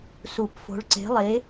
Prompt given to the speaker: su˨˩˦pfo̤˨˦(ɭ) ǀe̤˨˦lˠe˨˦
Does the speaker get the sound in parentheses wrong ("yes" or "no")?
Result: no